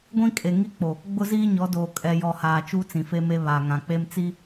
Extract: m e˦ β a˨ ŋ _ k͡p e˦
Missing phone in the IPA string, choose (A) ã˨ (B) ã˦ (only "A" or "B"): A